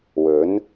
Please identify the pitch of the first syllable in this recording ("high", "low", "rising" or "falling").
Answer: rising